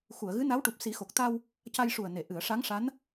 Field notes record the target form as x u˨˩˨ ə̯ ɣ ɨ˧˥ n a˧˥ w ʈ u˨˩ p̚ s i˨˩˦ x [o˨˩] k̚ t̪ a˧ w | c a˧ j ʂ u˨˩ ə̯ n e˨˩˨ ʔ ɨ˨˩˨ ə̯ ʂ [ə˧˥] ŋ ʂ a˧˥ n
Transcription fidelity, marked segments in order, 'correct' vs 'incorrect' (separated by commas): correct, incorrect